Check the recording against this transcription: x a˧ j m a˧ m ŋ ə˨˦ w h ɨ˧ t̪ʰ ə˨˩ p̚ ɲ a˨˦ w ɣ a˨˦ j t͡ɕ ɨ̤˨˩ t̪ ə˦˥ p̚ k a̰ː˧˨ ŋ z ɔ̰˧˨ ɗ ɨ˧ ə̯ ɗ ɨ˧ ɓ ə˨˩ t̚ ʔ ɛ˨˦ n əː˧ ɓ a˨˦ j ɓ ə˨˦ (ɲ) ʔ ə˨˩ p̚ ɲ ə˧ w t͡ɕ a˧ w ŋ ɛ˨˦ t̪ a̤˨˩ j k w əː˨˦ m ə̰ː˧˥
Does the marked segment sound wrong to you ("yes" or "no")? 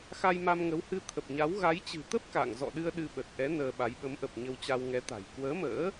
yes